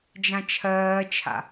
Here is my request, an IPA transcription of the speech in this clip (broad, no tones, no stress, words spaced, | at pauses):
d͡ʒãt͡ʃʰɜːt͡ʃʰa̰